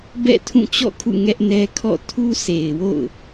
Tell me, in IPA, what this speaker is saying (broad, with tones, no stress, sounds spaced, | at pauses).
b ɛ̰˦˨ tʰ ũ˦˨ t͡ɕ ɔ̰˦˨ kʰ ṵ˦˨ ŋ ɛ˦ ʔ n ɛ˦ kʰ ɔ̰˦˨ tʰ u˦ sʰ e˨ ɪ̯ w o̰˦˨ ʊ̯